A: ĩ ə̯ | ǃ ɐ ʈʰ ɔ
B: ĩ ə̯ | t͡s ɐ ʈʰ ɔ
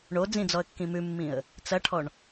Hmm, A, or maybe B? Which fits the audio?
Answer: B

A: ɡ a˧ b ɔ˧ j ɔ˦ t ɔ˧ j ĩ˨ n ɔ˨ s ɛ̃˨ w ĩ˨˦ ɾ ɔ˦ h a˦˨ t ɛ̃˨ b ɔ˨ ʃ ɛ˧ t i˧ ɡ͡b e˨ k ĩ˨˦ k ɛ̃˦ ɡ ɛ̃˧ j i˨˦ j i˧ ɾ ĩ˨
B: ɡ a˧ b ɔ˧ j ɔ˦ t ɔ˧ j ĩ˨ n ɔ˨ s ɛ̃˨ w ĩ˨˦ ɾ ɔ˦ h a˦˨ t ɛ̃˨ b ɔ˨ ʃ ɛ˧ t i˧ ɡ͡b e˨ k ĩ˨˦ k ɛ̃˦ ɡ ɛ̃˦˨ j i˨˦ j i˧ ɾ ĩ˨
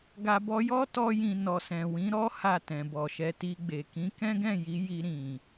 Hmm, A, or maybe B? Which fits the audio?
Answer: B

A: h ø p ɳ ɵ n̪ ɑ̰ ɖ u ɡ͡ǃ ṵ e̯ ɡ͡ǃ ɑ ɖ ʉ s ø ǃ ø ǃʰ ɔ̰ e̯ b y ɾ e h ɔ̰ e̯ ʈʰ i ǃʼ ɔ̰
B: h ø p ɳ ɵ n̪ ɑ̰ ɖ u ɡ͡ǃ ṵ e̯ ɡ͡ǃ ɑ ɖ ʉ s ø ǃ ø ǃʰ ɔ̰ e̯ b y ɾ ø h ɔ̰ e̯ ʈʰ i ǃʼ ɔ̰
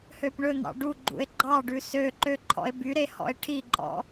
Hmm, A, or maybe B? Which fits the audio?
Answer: A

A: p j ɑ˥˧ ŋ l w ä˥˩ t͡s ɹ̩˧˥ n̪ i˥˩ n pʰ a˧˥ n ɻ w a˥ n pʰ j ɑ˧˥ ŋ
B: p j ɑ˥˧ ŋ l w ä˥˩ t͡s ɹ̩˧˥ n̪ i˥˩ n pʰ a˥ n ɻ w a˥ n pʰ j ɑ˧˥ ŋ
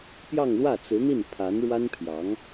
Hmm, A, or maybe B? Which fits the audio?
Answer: A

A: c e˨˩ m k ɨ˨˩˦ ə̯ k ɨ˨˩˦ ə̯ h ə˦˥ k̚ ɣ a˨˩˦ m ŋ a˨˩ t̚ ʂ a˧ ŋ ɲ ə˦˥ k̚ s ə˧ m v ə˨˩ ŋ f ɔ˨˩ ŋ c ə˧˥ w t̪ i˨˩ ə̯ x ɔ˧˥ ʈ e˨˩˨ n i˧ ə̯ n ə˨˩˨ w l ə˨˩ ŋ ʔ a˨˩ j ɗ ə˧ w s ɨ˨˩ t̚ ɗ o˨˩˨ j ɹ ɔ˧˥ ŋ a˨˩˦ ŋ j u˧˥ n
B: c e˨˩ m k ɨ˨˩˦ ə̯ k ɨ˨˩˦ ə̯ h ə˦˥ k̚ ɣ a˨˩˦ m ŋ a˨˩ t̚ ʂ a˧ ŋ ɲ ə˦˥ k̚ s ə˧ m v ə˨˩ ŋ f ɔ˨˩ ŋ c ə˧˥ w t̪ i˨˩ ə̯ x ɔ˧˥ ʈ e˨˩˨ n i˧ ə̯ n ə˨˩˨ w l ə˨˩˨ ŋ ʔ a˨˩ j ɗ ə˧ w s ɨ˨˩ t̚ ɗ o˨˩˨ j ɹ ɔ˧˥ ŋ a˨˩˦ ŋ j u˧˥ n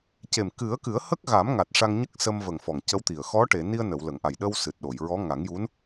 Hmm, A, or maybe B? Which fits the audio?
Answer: B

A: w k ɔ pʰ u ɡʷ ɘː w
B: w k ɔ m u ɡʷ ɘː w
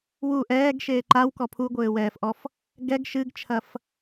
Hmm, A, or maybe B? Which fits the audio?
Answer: A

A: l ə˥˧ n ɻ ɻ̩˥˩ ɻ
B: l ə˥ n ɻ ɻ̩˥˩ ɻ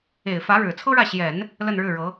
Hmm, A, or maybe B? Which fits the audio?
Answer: A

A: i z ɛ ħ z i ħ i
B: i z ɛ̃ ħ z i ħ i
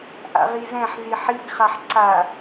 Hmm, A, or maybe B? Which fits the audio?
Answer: B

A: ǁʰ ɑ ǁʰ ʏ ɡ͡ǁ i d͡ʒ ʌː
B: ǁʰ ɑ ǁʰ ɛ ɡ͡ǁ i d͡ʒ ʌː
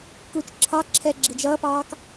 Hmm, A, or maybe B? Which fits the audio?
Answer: B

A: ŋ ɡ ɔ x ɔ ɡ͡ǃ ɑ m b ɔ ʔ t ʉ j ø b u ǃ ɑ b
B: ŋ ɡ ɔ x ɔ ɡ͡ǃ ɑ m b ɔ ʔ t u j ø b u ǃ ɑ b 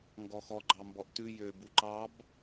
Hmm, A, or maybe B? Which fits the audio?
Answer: A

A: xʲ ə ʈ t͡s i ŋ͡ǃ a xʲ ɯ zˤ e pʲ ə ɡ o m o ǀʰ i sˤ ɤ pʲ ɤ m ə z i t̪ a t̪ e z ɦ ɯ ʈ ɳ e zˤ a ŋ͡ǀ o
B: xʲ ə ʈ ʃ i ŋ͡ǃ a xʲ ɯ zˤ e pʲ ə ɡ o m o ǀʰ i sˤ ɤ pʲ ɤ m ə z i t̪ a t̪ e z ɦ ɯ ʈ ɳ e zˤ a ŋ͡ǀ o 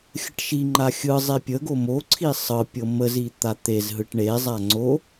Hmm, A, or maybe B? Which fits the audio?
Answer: B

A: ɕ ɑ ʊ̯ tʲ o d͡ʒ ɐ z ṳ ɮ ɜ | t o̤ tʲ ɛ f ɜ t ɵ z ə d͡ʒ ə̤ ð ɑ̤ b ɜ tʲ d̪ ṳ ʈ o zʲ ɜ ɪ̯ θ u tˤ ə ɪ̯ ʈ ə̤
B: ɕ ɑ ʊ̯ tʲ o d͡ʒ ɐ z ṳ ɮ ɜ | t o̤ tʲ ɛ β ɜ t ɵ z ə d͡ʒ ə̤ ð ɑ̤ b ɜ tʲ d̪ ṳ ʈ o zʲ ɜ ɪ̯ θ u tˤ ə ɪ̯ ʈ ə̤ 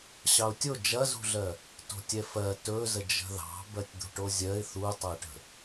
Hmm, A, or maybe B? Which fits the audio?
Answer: A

